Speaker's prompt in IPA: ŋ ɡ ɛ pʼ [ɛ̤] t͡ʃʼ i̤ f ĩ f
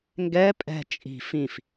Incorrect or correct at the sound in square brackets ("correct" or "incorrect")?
correct